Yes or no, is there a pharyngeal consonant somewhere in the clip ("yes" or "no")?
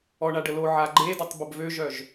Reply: yes